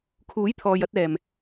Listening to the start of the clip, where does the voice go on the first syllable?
rising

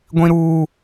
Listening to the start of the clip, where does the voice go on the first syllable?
high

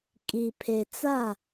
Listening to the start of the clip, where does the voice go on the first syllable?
low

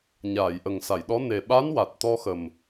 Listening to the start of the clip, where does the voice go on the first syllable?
low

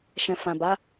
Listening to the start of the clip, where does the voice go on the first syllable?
low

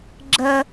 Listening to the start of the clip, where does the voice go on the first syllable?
high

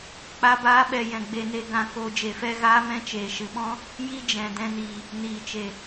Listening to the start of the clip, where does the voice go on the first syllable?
high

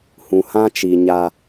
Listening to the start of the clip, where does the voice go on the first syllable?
low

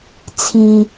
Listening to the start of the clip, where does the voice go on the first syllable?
low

